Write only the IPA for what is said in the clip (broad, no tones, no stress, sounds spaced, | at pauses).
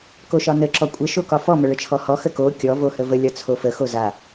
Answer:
k o ʃ ɒ n ə ǁ ɔ kʷʼ ə ʃ o k ɒ f ɔ m ə ɭ ə t͡ʃʰ ɔ h ɔ x ə k o kʲ ɔ v o h ə v ə lʲ ɒ t͡sʰ o f ə x o z a